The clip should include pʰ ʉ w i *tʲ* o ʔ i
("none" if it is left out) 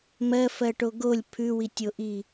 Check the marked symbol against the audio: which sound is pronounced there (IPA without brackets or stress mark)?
tʲ